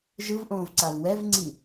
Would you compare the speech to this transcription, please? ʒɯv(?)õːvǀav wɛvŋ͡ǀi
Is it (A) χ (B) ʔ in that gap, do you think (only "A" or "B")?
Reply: B